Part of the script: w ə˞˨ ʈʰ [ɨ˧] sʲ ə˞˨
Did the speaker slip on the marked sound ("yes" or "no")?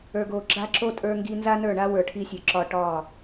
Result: yes